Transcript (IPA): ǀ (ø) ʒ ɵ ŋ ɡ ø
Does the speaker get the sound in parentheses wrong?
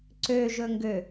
no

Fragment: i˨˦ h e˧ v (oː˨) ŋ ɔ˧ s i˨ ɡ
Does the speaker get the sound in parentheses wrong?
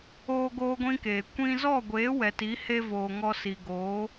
no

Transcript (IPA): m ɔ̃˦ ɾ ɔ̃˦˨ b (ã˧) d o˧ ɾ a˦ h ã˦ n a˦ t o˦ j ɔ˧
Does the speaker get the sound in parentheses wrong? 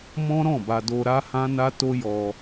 yes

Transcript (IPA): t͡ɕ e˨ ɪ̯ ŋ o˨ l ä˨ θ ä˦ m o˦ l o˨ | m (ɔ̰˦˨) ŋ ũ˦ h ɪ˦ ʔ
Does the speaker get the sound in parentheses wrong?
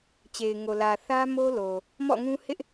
no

